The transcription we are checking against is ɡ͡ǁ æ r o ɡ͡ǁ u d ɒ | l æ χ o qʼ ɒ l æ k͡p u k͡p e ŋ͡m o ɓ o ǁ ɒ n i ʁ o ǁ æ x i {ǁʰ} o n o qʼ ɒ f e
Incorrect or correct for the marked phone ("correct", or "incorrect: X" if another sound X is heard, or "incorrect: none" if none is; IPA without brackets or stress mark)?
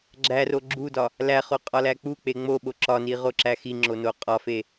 incorrect: ŋ͡ǁ